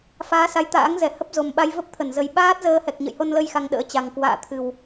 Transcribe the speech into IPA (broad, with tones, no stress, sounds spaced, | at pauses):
f aː˨˦ s a˨˦ j t̪ a̰ː˧˥ ŋ z ɛ˧˩ h ə˦˥ p̚ z o˨˩ m ɓ a˧ j v ə˦˥ p̚ t̪ʰ ə˧˩ n z ə˨˩ j ɓ aː˦˥ t̚ z əː˧ h ɛ˨˩ k̚ ɲ ə̰˧˨ j h o˧ n l ə˧ j x a˧ ŋ ɗ ə̰ː˧˥ t͡ɕ a˨˩ ŋ k w a̰ː˧˨ t̪ʰ ɨ˨˩ w